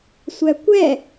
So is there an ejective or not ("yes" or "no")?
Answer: no